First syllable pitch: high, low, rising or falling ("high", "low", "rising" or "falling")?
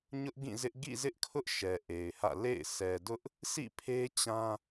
high